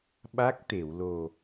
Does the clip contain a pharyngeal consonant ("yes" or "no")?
no